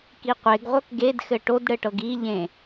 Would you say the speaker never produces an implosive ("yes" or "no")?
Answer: yes